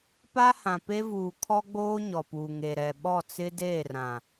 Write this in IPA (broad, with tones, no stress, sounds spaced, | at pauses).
p a˦ h ã˨ p e˦ v uː˨ kʰ ɔ˦ ɡ͡b oː˦ ɲ ɔ˨ p uː˨ ŋ e˨ ɾ ɛ˨ ɓ ɔ˦˨ t͡s ɪ˦ d eː˦˨ r ã˨